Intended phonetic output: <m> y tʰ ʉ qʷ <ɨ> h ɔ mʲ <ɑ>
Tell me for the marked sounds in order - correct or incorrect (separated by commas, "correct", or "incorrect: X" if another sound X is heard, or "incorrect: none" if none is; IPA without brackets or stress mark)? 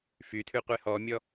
incorrect: f, incorrect: e, incorrect: ɔ